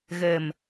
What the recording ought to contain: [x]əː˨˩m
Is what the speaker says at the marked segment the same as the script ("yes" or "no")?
no